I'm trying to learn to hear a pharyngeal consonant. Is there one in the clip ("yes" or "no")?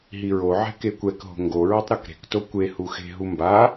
yes